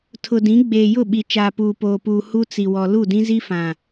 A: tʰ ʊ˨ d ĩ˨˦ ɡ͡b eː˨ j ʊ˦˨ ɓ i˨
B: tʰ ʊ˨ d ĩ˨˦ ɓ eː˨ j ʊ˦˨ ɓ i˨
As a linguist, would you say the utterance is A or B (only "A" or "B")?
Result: A